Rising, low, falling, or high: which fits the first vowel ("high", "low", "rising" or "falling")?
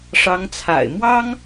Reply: rising